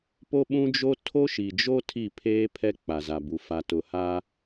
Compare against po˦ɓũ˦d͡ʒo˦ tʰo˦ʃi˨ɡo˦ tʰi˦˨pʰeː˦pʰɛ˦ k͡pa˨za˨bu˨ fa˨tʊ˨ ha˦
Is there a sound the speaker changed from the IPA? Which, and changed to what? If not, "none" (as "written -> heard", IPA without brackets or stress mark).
ɡ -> d͡ʒ